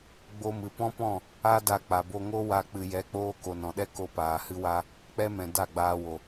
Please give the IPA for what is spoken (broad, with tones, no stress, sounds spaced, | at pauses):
ɡ͡b o˧ m ɨ˨ p ɔ̃˦ p ɔ̃˦˨ | a˦ d a˧ k͡p a˨ b o˧ ŋ o˦ w a˧ k͡p ɨ˨ j ɛ˨˦ k͡p oː˧ k o˨ n ɔ̃˨ ɗ ɛ˦ k o˧ p aː˨ h ɨ˧ w a˧ | k͡p ɛ˦ m ɛ̃˨ d a˦˨ ɡ͡b aː˧ w o˨